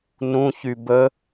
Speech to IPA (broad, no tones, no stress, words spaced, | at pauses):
nũçy bə